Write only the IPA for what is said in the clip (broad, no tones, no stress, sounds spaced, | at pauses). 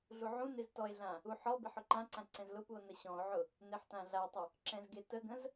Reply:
ɮ u ʕ ũ n e z t ɔ e̯ ɮ ã | u ħ ɔ b e ħ ʊ ǃ ã ǀ ã ǀ ɛ̃ z l ʊ p u o̯ n ə ɕ ɔ̃ o̯ ʕ ʊ | n e ħ t ã ɮ a tˤ ʏ | ǁ ɛ̃ z ɡ e t ə ɡ ə̃ z